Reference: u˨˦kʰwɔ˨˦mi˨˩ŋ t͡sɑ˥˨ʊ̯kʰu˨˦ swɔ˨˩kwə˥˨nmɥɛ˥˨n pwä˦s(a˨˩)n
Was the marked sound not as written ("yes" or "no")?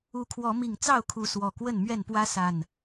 no